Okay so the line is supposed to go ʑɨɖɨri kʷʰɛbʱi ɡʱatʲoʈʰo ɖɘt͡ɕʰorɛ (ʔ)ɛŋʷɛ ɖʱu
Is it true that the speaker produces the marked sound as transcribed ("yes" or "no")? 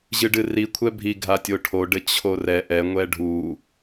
yes